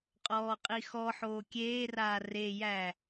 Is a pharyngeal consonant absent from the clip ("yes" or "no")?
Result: no